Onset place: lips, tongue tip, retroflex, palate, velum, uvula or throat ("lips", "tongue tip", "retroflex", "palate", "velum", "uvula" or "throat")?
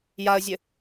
palate